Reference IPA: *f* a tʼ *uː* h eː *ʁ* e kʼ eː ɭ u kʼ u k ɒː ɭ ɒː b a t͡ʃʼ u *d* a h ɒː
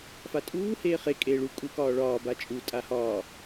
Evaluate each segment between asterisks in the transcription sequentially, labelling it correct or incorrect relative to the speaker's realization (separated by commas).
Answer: correct, correct, incorrect, incorrect